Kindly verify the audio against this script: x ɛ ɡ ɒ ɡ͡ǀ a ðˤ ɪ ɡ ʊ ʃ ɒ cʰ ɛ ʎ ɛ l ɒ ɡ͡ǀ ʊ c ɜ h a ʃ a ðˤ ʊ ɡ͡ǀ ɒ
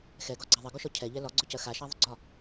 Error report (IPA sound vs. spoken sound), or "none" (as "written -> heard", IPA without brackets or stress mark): h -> x